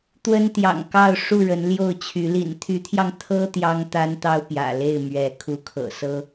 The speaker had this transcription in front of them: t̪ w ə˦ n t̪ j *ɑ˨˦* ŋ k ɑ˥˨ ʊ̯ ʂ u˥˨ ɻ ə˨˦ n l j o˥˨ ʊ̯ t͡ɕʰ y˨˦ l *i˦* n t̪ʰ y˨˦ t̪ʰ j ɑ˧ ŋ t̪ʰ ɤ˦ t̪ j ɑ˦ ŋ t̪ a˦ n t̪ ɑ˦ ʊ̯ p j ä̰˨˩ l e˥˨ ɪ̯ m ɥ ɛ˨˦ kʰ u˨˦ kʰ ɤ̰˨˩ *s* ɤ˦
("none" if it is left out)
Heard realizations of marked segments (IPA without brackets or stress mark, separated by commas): ɑ̰˨˩, ḭ˨˩, s